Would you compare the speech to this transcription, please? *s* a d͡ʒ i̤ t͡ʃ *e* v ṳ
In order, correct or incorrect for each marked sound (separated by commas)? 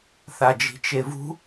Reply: incorrect, correct